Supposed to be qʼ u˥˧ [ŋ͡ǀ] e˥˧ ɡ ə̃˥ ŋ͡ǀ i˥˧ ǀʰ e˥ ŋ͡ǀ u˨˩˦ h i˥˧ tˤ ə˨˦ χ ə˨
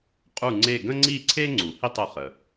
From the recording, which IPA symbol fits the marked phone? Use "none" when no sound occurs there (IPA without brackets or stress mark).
ŋ͡ǀ